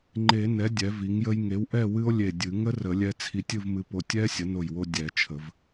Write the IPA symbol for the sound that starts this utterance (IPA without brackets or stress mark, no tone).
ŋ͡ǃ